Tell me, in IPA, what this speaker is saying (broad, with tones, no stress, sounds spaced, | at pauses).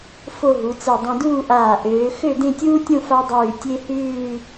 f o˥˧ ɦ u˩˧ t͡s ɛ˧˩ dˤ ẽ˧ d uː˥˧ ʔ aː˧˩ ʔ øː˩˧ x ø˥˧ d ẽ˥˧ tʲ uː˥ tʲ õ˥˧ f a˥ dˤ ʉː˧˩ tʲ e˥ h ʉː˥˧